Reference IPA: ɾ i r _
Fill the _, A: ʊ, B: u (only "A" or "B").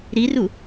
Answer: B